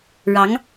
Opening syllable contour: rising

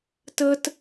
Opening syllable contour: high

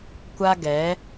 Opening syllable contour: high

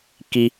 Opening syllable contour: high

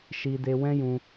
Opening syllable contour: high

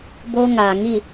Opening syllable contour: high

